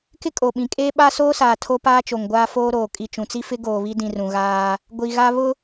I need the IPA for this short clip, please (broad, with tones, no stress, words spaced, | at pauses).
kɪ˦kʼo˨ɓĩ˨˦ kʼeː˦ɓa˦soː˦ saː˨tʰo˦ paː˦t͡ʃo˨ŋɡʷaː˦ foː˦ɾoː˨ kʼi˨t͡ʃũ˨t͡si˦fɪ˦ ɡoː˨βi˦dĩ˨ rũ˨ɣaː˦ | ɡʷi˨ɣa˦ βʊ˦